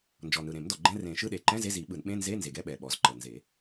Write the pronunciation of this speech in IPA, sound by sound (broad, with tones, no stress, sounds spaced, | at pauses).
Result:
n d͡ʒ ɔ˨˩ n ɯ˨˩ ɾ ẽ˨˩˦ m d ɔ˨˩ ɡ͡ǃ ɛ̃˧˥˧ r ẽ˨˩˦ ʃ ɯ˧˥˧ ɗ e˨˩ ǃ ɛ̃˧˥˧ z e˧˥˧ z i˨˩˦ ɓ ɯ˨˩˦ n ɓ ẽ˧˥˧ n z e˧˥˧ n z e˨˩ ɡ ɛ˧˥˧ ɓ ɛ˨˩ ɓ ɔ˨˩ z ǃ ɤ˨˩ n z e˨˩˦